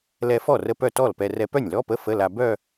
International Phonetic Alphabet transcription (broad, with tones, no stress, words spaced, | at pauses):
lɛ˧fɔ˥˩rə˧ pœ˥˩tɔ˥˩lpɛ˧ rɛ˧pœ˥˩nʲlɔ˧˥˧pə˧˥˧ fə˧˥˧la˧ bœ˥˧